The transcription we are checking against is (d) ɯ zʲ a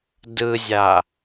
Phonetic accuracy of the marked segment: correct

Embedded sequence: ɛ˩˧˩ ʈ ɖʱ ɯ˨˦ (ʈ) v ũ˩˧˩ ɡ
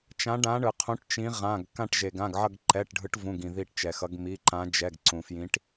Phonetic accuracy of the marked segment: correct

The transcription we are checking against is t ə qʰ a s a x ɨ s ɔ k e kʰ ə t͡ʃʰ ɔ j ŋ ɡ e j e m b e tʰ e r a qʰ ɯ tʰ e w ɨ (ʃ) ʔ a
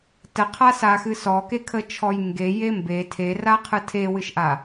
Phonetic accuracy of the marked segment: correct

